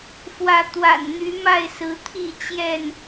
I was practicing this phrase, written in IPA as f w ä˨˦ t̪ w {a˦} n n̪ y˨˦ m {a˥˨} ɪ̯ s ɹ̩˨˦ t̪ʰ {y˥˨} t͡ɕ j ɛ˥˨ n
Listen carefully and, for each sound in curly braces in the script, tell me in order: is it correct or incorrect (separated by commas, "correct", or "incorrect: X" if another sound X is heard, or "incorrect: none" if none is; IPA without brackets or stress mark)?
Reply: incorrect: a̰˨˩, correct, incorrect: i˥˨